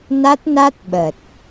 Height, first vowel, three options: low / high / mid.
low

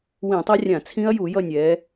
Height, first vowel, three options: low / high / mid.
high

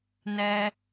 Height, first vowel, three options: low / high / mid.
mid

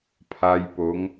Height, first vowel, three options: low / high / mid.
low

